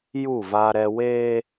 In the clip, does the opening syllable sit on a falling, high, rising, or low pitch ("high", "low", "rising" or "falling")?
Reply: falling